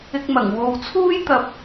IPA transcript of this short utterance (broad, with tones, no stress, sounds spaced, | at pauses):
ɪ˧ k̚ m ɐ˨˩ ŋ w o˨ w t͡sʰ uː˥ j t̪ ɐ˧ p̚